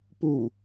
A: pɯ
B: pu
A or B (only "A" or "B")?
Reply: B